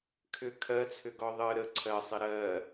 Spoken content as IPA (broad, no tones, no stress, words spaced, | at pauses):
kʰʏ kʰɜt͡sʰʏɡɔ ðˤɨ ɾə ǀʰɜsˤɪ ɾɜ